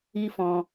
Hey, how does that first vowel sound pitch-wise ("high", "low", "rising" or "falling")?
high